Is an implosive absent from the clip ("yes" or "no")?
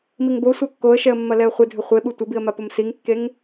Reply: no